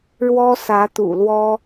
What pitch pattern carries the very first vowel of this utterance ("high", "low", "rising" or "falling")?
high